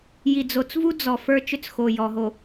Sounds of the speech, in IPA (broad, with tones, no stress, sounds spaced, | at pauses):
j i˨ d͡z o˨ t͡s v u˦ d͡z ɔ˨ f ə˞˦ t͡ʃ ʏ˦ t͡s x o˨ j ɔ˨ ɦ o˨